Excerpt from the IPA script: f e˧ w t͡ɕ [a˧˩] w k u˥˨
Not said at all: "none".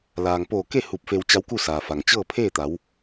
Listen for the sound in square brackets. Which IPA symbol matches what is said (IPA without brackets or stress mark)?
a˧˥